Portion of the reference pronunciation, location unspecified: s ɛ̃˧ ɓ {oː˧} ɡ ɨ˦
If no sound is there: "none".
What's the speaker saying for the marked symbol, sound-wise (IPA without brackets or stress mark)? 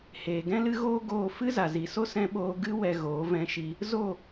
oː˧